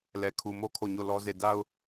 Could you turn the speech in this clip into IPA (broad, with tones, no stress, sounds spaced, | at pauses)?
l ɛ˨ kʰ u˨ m o˦ kʰ o˦˨ ɲ o˦˨ l ɔ˦ z e˦˨ d a˦ ʊ̯